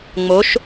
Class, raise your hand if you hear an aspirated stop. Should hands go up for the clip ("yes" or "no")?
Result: no